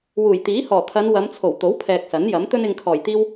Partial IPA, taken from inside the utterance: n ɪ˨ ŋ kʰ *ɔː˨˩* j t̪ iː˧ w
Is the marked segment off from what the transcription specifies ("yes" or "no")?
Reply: no